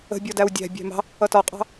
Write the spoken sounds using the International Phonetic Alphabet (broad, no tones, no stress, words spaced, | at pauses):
ə̤ bʲɔdæwdʲæ̤ bʲæ̤mɑ̤ | ʌtɒqʼɑ̤